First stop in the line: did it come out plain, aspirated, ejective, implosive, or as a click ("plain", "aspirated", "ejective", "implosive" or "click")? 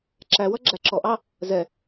click